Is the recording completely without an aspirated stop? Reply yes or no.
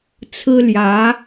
no